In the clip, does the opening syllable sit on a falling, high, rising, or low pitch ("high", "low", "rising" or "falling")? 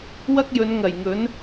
high